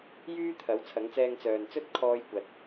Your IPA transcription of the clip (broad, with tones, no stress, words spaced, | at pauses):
jyː˥t̪ʰɐ˨˥w t͡sʰɐ˨˥ŋt͡sɛː˧ŋ t͡sœː˨nt͡sɵ˥t̚ kʰɔː˥jkʷɐ˧t̚